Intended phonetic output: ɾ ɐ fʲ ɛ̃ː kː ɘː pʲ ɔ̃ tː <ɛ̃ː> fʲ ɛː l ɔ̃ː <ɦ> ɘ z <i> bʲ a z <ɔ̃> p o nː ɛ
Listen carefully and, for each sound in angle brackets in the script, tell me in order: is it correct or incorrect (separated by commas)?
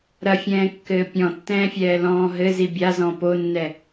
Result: correct, correct, correct, correct